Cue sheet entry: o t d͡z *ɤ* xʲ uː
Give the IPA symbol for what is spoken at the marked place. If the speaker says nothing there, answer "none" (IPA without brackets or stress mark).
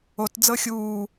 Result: ɤ